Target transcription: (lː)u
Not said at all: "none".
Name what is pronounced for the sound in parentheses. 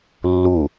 lː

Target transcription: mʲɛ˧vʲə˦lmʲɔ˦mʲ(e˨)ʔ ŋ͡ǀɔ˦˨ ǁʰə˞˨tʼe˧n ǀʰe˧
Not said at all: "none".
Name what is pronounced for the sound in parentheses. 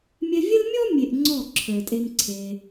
e˨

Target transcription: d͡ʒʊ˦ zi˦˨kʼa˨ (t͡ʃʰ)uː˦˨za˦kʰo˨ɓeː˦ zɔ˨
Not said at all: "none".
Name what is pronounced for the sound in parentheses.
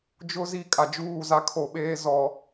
d͡ʒ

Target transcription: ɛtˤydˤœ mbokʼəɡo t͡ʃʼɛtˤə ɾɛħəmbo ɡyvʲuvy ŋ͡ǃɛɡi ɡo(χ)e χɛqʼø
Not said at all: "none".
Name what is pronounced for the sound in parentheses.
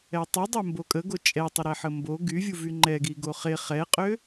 χ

